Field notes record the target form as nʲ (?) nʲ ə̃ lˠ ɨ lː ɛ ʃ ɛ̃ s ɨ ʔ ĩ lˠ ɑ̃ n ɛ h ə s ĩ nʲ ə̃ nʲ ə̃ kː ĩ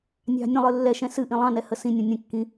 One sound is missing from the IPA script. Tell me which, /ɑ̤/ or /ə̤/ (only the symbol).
ɑ̤